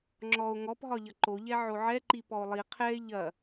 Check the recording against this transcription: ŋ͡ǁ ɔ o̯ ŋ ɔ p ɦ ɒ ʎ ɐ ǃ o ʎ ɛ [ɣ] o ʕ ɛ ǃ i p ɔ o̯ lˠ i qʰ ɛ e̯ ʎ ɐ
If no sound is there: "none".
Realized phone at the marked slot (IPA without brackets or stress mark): ʕ